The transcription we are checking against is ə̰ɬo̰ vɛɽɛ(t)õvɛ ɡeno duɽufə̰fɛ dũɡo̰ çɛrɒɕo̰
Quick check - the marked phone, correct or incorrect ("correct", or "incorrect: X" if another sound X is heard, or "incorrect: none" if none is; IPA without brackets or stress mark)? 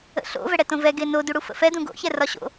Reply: correct